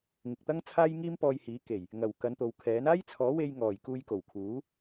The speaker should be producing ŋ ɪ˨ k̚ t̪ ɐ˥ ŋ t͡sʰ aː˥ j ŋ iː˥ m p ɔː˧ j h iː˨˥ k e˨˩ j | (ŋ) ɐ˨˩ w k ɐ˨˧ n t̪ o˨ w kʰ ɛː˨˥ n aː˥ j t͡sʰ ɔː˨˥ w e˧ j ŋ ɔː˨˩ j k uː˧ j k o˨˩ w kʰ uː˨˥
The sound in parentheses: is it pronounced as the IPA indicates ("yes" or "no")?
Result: yes